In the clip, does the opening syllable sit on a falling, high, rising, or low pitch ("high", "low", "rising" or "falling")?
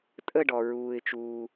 falling